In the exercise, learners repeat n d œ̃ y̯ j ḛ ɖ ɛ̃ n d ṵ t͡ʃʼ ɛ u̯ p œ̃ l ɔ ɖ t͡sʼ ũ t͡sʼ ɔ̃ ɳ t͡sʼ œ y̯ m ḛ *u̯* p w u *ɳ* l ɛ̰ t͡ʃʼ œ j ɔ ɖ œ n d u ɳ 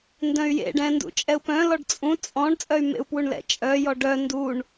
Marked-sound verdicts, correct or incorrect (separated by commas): correct, correct